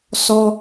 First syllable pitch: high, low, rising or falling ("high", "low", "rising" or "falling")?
high